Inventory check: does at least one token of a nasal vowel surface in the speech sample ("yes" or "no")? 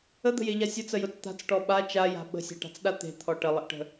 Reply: no